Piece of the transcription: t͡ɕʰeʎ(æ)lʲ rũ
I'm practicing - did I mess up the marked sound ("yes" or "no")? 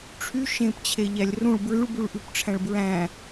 no